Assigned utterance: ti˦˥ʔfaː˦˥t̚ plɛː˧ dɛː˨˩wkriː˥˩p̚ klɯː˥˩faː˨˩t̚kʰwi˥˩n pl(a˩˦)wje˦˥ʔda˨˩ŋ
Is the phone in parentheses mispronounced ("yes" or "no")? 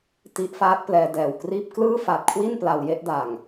yes